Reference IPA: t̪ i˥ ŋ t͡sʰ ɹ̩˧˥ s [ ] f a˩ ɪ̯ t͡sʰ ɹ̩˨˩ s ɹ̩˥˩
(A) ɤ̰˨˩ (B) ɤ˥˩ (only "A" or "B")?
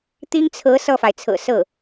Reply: B